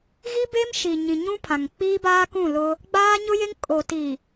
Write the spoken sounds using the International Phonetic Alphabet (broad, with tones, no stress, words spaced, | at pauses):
ɣi˦be˦m ʃi˨ ɲĩ˨ɲũ˦pʰã˨ŋ k͡piː˦baː˦kũ˦˨ lʊ˦ | ɡ͡baː˦ɲʊ˦je˦ŋ kʼo˨ti˨